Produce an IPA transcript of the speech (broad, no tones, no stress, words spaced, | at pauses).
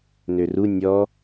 nøru nʲɔ